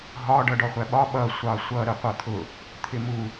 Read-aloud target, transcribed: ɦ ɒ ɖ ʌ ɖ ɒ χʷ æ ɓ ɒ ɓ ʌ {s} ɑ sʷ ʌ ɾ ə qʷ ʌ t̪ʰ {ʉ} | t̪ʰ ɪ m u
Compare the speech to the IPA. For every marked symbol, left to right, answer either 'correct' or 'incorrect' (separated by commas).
incorrect, incorrect